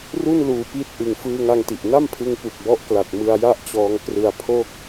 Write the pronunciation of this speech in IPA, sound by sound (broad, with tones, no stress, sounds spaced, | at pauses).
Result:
r u˥˩ n l uː˨˩ p i˦˥ t̚ ʔ ɯ˨˩ ŋ f ɯː˧ ŋ a˧ ŋ t i˨˩ ʔ n a˥˩ m pʰ ɯ˧ ŋ p u˨˩ k̚ b ɔ˦˥ ʔ k l a˨˩ t̚ m ɯ˧ a̯ j a˥˩ ʔ t͡ɕ ɔː˧ ŋ k r ɯ˧ a̯ pʰ o˥˩ k̚